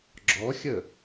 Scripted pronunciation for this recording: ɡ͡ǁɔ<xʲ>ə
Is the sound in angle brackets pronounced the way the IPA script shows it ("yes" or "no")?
yes